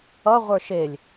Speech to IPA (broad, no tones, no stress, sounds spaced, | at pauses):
ʌ ʁʷ ə˞ ʃ e lʲ